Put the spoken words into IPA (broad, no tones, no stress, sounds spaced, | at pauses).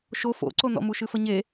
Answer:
ʃ o f o̰ ǀ o n ɔ̰ m u ʃ ɨ f ə ɲ e